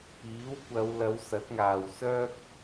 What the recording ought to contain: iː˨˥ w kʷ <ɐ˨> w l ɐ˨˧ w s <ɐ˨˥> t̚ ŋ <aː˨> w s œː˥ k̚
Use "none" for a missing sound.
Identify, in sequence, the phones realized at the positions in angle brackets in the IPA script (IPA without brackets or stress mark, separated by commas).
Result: ɐ˨˧, ɐ˨˥, aː˨